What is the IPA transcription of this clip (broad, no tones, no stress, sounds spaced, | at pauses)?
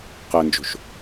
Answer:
q ɛ n d͡ʒ o̤ ʃ